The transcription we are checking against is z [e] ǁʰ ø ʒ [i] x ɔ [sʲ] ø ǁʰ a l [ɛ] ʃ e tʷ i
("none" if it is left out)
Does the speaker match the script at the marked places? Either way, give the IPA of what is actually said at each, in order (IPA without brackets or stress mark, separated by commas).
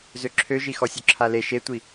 ø, i, sʲ, e